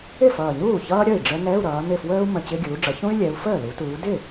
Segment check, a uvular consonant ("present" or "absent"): absent